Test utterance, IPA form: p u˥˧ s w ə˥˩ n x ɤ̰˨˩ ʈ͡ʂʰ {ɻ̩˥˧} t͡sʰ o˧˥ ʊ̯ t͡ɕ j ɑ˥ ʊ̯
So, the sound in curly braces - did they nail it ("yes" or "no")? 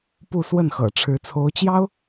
no